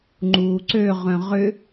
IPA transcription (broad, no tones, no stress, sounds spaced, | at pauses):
ŋ͡ǃ uː ǀ ø ʁ œ̃ ʁ ʏ